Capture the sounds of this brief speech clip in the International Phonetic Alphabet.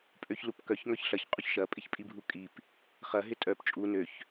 pʼøçlupkœç ŋœçɬɐç qʼuçʃɐpʼɪçpʼi bʱukʼip | χɐɦɪ tʼœp t͡ʃʼu nøç

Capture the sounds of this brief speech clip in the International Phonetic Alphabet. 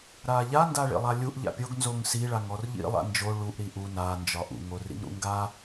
ɾaʎa ndaɭḭlˠalʲuʔ ʎa̰pʲoɡ nzoŋsi ɭaŋɔrʎḭ lˠa̰nd͡ʒo ɭuʔ ɾiʔu na nd͡ʒɒʔṵ ŋorḭŋɾṵŋɡa

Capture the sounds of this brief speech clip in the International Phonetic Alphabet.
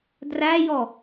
dræjɔ

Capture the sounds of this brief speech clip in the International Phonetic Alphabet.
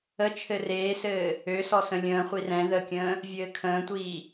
ət͡ʃʰɘ reːsɘː | øsɔ sə̃lʲə̃ːχʷi rɛ̃ ðəkʲə̃ː | vʲɘːkʰə̃ːtʷiː

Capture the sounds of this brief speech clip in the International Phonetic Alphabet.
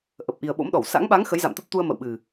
ʔə˨˩p̚ʔi˨˩ə̯ɓo̰˧˥mɗɔ˧˩w sa̰˧˥ŋɓa˨˦ŋ xə˨˦jza̰˧˨mt̪ə˦˥p̚t̪u˧ə̯ mə̰˧˨wɓɨ˨˩

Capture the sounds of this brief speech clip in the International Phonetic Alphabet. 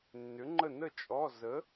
nːʏ˨˥ŋ͡ǃə˥˨ nə˥˨ t͡ʃʼɔ˧˥˧ zə˨˥

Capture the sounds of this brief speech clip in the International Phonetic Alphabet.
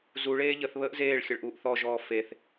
zuɭeː ʎəθβəːʔ zeːɭ xʲəɭʔuːʔθɔʒɔː feθ

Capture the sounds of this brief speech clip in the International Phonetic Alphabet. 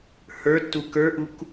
hə˞tːu kə˞ʔuk

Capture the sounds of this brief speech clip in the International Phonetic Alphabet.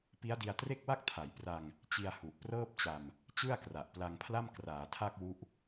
pi˦˥a̯di˧a̯tre˥˩k̚wa˥˩k̚ tʰa˩˦jpra˧ŋ | t͡ɕi˧a̯hu˨˩ʔprɤː˥˩p̚t͡ɕa˧m | t͡ɕɯ˥˩a̯kra˨˩ʔpla˧ŋpʰla˥˩m kraː˩˦tʰa˥˩k̚wu˦˥ʔ

